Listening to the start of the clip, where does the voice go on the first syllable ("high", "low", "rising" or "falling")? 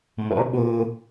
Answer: rising